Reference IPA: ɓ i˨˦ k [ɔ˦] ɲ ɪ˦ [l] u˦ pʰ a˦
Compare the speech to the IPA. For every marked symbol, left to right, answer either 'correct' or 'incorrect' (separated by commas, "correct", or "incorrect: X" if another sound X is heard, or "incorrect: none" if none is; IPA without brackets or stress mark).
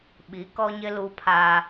correct, correct